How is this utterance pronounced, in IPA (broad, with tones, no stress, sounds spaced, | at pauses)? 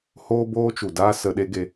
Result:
h oː˦ b oː˦ t͡ʃ u˨ d aː˦ s ə˧ ɗ e˦ ɡ e˧